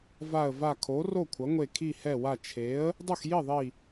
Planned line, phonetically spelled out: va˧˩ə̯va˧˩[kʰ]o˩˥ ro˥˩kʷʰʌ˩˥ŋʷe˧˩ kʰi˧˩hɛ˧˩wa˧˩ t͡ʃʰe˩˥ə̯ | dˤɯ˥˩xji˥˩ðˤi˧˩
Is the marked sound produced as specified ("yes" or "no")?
yes